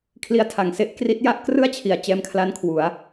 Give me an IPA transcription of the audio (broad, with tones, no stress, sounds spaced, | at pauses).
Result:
kʰ l i˦˥ a̯ tʰ a˨˩ ŋ s e˦˥ ʔ k r i˦˥ t̚ j a˥˩ ʔ k r ɯ˥˩ a̯ t͡ɕʰ i˩˦ a̯ t͡ɕ ɛː˧ m kʰ l a˦˥ n kʰ w u˩˦ a̯